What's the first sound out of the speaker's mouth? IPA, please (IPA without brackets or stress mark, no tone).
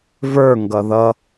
v